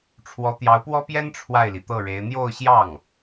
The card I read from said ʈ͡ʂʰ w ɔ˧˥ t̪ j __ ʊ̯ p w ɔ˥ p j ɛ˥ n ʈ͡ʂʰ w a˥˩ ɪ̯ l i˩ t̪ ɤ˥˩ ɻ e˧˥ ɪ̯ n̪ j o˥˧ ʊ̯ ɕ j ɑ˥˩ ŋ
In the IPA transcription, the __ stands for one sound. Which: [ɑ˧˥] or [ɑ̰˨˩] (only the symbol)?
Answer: ɑ˧˥